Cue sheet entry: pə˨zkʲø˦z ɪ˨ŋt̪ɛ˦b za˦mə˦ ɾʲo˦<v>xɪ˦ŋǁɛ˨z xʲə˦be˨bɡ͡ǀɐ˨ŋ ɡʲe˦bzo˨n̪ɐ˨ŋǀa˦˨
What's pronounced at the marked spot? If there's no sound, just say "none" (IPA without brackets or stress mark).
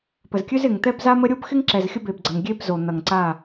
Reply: b